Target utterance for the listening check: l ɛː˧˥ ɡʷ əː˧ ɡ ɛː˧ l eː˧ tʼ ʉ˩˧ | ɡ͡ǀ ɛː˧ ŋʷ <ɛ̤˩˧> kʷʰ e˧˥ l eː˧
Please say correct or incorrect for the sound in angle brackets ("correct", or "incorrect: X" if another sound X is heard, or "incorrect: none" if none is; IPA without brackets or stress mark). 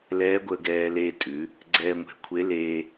correct